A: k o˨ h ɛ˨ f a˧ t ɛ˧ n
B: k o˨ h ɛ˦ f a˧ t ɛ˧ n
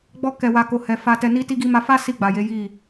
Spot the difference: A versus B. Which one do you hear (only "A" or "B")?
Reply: A